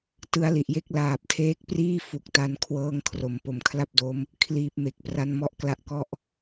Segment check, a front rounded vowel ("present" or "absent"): absent